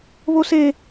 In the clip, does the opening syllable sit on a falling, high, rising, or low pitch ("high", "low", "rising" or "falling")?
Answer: high